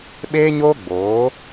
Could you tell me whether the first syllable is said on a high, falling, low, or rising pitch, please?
high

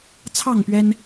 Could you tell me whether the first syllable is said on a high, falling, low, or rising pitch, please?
falling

